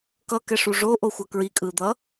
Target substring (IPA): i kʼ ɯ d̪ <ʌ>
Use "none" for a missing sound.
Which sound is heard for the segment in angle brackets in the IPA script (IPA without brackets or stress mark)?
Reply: ʌ